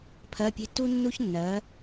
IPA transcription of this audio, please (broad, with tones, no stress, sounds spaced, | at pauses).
pʰ ɜ˧˥˧ pʲ e̤˥ t u˥ nː u˥ ç nː ɜ˨˥